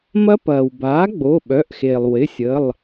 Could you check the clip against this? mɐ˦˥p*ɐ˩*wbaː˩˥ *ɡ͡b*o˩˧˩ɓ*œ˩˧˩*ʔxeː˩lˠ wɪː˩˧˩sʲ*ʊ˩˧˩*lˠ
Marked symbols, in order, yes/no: no, yes, yes, no

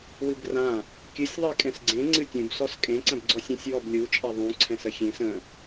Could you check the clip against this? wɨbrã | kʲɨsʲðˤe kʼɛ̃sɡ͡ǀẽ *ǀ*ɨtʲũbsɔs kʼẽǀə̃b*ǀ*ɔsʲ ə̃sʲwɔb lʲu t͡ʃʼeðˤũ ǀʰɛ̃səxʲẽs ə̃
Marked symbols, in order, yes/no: no, no

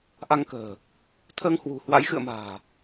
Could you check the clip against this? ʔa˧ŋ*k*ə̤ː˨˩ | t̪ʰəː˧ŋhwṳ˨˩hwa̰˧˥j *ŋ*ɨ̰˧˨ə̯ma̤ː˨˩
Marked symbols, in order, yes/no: yes, no

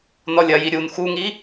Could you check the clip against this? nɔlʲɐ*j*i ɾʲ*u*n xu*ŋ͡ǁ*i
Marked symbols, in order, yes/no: yes, yes, no

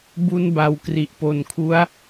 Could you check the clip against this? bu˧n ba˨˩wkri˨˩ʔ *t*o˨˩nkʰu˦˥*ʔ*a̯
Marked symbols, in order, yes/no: no, no

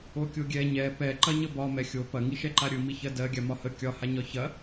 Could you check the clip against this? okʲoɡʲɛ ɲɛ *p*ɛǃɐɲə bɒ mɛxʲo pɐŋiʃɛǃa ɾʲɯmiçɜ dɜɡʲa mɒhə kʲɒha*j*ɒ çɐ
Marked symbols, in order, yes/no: yes, no

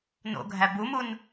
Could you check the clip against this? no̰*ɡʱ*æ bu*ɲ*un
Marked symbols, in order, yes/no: yes, no

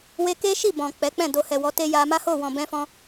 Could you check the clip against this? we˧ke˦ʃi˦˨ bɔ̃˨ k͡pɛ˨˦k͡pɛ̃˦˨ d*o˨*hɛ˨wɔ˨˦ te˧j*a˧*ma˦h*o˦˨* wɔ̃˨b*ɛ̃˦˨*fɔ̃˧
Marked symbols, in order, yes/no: yes, yes, yes, no

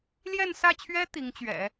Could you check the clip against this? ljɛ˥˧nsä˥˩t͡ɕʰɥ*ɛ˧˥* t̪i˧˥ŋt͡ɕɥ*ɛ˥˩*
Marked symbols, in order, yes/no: no, no

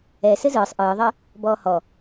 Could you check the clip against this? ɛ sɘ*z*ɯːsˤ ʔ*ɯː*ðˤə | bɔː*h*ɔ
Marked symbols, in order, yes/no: yes, yes, yes

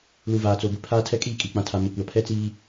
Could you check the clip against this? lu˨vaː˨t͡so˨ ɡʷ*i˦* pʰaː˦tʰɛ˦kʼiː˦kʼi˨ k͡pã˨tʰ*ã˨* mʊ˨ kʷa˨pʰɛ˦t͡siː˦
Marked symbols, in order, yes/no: no, no

